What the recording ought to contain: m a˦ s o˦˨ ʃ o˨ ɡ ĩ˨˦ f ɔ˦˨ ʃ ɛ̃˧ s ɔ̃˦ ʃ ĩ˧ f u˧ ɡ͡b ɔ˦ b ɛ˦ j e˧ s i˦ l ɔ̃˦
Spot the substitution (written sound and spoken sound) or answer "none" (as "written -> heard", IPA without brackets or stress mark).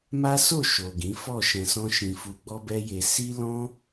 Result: none